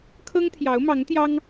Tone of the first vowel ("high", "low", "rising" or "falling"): high